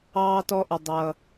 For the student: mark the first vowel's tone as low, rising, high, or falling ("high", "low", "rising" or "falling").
low